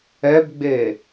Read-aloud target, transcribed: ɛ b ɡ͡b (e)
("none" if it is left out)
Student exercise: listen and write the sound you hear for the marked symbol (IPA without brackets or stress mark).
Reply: e